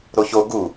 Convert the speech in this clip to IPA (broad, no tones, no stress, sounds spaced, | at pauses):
ɾ o ç o ɡ u